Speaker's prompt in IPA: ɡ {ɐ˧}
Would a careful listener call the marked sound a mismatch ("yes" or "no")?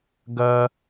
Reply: no